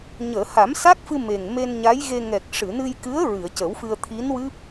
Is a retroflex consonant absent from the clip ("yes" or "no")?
no